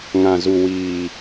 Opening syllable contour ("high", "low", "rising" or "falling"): low